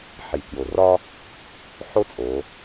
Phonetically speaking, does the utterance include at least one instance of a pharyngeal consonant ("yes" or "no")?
yes